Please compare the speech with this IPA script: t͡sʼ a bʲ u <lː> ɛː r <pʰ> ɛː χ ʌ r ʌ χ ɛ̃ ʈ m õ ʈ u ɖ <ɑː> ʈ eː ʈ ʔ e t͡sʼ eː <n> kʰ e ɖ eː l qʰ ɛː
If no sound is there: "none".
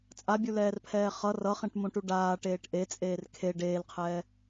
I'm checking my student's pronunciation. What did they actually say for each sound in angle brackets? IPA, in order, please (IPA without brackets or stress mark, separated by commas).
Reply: l, pʰ, aː, r